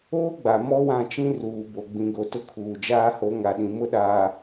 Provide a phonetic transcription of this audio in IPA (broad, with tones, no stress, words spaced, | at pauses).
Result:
oː˦ɡ͡ba˨ mɔ˦wã˦˨t͡ʃĩ˦ ruː˨bo˨ ɡ͡bĩ˨ɡo˨ tʊ˦kʰuː˨d͡ʒaː˦ho˨˦ ŋa˨ɗĩ˨ mʊ˦ɗaː˨